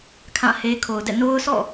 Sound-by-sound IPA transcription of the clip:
kʰ ã˦˨ h e˦ kʰ o˨ ʊ̯ d ɛ̰˦˨ n o˦ ʊ̯ s ɔ̰˦˨

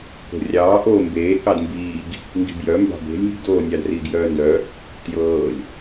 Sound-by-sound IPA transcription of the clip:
k o̤ rʲ ɑː ʔ oː m b eː k ɑ d m b iː ɡ | ŋ ɡ i̤ b j œ m b ɑ̤ b e̤ lʲ i̤ ɡ d oː nʲ ɑ d r iː ɡ j œː n d œ | t j ɤː lʲ

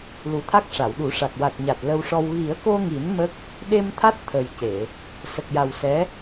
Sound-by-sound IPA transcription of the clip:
l u˨˩ t̪ʰ a˦˥ k̚ ʂ a˨˩˨ w ɗ u˨˩˦ ʂ a˨˩ k̚ w a˨˩ t̚ ɲ a˨˩ t̚ l ə˧ w ʂ ɔ˧ w ɣ i˨˩˦ ə̯ k o˧ ŋ i˨˩˦ n m ə˦˥ k̚ | ɗ e˧ m t̪ʰ a˦˥ t̚ t̪ʰ ə˨˩ j c e˨˩˨ | s ə˨˩ k̚ j a˨˩ w s ɛ˧˥

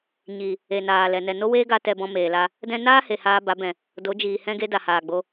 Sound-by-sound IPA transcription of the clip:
ɲ i˨ | e˨ n aː˨ l ɛ˨ n ɛ˨ n o˦ w eː˦ ɡ a˦ t ɛ˧ b ɔ̃˧ m eː˨ l a˧ | d ɛ̃˧ n aː˦ h e˨ h aː˧ b a˨˦ b ɛ̃˨ | d o˨˦ d͡ʒ iː˨ h ɛ̃˦ ɡ e˦ d a˨ h aː˨ ɡ͡b o˧

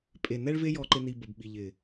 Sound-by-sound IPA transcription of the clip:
pʼ e˨ n ɛ˦ ɭ v e˦ j ɔ˧ ǃ ɪ˧ n i˧ b ə˨ b ɓ i˨ ʎ ɪ˨

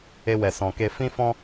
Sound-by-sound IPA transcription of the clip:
e˧ w ɛ˨ s ɔ̃˨ k e˧ f ĩ˦ f ɔ̃˦

